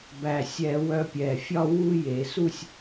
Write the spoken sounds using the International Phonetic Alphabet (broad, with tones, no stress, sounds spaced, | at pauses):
b æ˨˩ sʲ ɛ˧˩˧ w œ˧ pʲ ɛ˨˩ fʲ ɒ˥˧ w u˥˧ j e˧˩˧ s u˥˧ sʲ